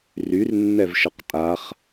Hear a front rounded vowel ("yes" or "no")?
yes